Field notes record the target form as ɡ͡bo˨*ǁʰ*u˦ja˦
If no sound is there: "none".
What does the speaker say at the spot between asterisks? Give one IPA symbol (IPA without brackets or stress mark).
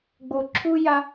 ǁʰ